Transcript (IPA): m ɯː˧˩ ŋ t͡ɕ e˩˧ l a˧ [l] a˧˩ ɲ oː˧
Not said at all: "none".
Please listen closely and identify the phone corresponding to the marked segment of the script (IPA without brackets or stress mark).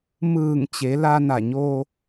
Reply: n